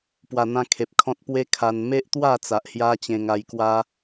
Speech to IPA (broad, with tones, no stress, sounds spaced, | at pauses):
p w a˨˩ n̪ ã˧ kʰ e˨ p̚ kʰ ɔ̃˦ t̚ p w e˦ kʰ a˧ n m e˦ ʔ t̪ w a˥˧ t͡s a˨ ʔ h j a˦ t͡ɕ ẽ˧ ŋ a˧ j k w a˦